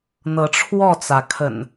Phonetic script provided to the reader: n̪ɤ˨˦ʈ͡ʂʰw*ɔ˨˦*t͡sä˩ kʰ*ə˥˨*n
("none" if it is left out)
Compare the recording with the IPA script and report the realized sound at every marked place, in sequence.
ɔ˥˨, ə̰˨˩

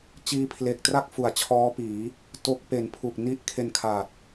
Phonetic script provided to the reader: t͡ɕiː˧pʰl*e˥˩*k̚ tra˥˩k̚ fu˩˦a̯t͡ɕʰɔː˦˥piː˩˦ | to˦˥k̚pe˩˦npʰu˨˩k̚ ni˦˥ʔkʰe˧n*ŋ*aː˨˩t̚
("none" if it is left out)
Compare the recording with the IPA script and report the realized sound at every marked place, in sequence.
e˨˩, kʰ

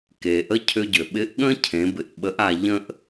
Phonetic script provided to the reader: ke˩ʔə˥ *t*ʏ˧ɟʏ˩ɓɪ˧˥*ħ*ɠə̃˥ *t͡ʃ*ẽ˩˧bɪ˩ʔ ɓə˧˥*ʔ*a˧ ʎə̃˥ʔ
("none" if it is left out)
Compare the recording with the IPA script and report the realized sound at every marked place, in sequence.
cʰ, ʔ, cʰ, ʔ

